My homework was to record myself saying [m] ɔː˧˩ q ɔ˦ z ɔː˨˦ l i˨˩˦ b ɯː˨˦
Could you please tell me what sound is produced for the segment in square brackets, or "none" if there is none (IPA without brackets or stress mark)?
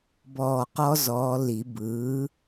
b